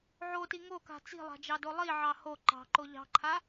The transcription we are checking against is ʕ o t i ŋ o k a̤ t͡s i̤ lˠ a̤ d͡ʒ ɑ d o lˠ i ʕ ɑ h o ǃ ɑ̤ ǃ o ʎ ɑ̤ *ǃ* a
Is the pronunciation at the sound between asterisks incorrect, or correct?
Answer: incorrect: ǃʰ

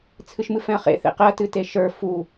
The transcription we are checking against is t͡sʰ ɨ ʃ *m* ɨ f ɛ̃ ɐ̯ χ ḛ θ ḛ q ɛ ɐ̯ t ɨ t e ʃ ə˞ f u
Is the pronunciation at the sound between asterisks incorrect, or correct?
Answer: correct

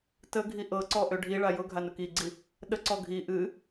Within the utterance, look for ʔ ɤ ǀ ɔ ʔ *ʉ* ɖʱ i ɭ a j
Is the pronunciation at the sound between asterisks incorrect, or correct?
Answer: incorrect: ø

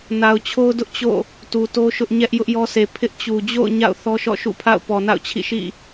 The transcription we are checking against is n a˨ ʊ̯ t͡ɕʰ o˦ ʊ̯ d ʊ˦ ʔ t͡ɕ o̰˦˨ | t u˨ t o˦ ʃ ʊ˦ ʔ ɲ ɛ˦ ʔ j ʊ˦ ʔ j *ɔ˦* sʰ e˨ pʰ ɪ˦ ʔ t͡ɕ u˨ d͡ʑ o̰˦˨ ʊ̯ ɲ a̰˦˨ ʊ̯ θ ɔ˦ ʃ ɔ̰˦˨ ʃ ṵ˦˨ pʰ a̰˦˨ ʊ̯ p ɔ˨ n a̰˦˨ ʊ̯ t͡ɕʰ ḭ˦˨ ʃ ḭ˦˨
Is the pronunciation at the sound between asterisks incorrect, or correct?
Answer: correct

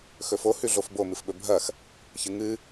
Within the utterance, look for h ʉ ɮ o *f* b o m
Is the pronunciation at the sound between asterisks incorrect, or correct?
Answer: correct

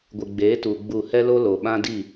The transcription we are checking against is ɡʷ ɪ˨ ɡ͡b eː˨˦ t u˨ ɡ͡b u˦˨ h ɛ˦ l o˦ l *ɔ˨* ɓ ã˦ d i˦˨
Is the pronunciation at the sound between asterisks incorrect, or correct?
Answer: incorrect: o˨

